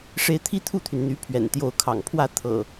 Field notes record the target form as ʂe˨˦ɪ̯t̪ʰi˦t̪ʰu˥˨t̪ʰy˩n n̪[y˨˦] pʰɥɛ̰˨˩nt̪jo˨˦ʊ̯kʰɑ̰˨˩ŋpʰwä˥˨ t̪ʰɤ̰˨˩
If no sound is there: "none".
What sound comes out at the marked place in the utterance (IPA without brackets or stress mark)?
y˨˦